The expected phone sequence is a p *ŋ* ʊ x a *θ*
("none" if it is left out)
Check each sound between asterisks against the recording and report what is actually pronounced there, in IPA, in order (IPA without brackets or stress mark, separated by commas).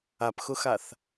x, θ